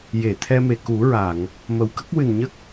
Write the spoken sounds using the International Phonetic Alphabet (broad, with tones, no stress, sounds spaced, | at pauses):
j e˨˩˨ t̪ʰ ɛ˧ m e˨˩ k u˨˩˦ ɹ a˨˩˨ ŋ | m ə˨˩˨ w k ə˦˥ k̚ w ɨ˨˩ n ɲ ə˦˥ k̚